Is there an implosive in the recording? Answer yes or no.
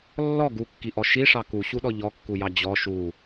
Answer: yes